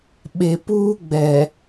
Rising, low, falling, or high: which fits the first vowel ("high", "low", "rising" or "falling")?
low